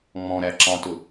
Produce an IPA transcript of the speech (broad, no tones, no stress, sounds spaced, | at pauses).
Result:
ŋ͡m ɔ̃ ɾ æ ǁ ɑ̃ t ʊ